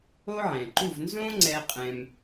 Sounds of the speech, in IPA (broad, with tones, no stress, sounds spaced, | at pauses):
o˥ ʕ ɛ̃˩ ǃ u˥˩ v n z õ˥ ŋ͡ǀ ɛ˧ qʼ ɛ̃˧ m